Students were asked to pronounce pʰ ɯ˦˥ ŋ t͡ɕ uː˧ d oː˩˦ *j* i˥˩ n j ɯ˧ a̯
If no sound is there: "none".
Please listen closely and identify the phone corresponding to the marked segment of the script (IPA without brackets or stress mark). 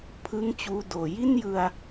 j